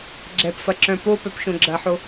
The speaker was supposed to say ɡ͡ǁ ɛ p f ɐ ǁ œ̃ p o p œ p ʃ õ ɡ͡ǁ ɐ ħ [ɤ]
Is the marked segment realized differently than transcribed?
yes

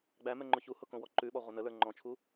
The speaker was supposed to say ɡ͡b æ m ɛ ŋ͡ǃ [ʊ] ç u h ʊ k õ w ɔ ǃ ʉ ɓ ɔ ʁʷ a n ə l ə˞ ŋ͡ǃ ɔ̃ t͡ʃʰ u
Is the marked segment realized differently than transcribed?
no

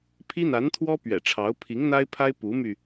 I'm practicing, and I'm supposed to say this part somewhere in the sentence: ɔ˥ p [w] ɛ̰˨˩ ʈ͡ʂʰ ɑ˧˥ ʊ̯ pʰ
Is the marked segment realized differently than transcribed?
yes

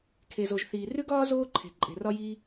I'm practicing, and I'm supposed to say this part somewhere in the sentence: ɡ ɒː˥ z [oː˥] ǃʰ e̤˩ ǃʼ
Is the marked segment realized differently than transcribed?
no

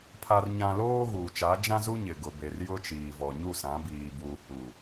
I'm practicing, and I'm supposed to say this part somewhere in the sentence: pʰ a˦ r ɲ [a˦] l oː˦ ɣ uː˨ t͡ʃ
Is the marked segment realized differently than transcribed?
yes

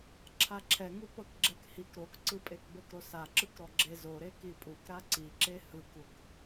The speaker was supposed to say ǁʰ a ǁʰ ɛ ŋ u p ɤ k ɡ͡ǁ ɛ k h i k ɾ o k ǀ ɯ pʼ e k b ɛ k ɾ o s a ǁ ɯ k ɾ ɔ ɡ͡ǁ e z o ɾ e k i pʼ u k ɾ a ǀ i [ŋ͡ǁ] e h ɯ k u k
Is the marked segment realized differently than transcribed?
yes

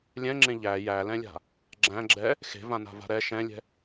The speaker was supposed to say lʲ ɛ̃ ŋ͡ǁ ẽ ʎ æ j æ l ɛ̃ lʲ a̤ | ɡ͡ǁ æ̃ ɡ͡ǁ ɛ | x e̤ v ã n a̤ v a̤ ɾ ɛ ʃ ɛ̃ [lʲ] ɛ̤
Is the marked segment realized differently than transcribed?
no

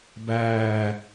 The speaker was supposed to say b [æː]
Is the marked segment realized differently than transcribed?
no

